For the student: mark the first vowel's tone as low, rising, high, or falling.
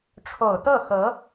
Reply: low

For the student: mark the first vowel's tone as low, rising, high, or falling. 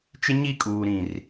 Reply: high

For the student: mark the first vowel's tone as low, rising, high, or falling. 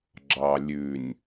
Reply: low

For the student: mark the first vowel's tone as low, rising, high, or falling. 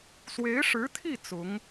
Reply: rising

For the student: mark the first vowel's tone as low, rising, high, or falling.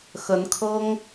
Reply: rising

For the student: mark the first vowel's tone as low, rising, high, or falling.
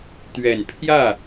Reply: low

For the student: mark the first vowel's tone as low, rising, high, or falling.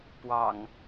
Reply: low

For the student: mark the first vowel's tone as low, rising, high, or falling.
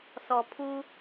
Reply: low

